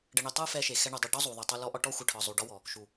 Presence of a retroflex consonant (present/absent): present